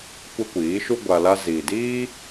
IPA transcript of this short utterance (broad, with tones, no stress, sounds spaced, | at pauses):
kʷ ɛ˦ kʷ iː˨˦ ʃ u˦ ɡʷ a˧ l a˦ z iː˨ d iː˦